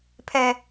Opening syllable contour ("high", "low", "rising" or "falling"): high